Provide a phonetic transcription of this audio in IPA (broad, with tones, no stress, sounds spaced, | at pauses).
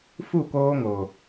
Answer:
f u˦˨ k oː˦ ŋ o˨